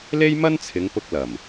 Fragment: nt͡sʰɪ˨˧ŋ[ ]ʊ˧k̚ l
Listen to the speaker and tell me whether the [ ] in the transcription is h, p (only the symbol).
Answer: p